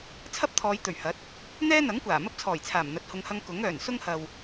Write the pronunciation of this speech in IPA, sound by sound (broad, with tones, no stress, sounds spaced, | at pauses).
t͡sʰ ɐ˥ p̚ t̪ʰ ɔː˨˧ j t̪ ɵ˨˩ ɥ h ɐ˨˥ t̚ | n̪ ɛː˥ n̪ ɐ˨˥ ŋ kʷ aː˨˩ m ɐ˥ p̚ t͡sʰ ɔː˨˩ j t͡sʰ aː˨˩ m n̪ ɐ˨˥ t̚ h ʊ˨˧ ŋ h ɐ˧ ŋ k ʊ˨˥ ŋ œː˨˩ n s ʊ˥ ŋ h ɐ˨ w